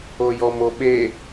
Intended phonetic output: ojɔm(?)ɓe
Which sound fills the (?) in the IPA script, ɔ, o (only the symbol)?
o